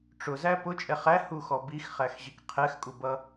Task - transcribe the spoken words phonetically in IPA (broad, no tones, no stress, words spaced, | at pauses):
ʈ͡ʂʊzæ pʊt͡ʃʼɛ χæhuxɔ bixχæxʑik qʰɛxkʼubʌ